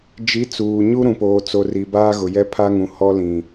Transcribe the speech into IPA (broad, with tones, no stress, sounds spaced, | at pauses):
d͡ʒ i˨˦ t͡s uː˨ ɲ u˦ ɾ ũ˨ p oː˨ t͡s o˨ r i˨ b aː˦ ɣ ʊ˨ j ɛ˦ pʰ a˦ ŋ ũ˨ h ɔ˦ l ĩ˨